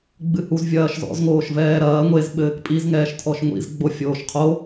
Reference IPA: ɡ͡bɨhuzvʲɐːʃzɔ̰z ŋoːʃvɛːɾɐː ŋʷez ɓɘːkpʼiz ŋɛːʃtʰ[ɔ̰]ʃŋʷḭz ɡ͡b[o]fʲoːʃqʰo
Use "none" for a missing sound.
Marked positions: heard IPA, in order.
ɔ, o

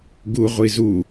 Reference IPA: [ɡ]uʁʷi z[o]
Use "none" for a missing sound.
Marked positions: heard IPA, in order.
ɡ, u

